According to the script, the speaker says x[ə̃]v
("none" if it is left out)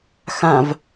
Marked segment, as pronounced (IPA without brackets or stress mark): ã